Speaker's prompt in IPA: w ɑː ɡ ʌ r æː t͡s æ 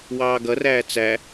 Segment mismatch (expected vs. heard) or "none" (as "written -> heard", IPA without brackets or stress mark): none